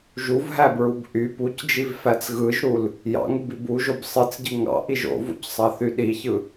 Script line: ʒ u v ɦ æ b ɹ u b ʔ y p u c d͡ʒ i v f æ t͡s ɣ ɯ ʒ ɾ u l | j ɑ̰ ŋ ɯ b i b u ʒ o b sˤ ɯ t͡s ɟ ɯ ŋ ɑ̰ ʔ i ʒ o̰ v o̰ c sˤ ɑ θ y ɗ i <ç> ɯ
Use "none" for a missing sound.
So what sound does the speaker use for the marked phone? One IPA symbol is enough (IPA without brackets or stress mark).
ç